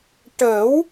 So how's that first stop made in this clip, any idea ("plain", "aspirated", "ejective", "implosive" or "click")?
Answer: plain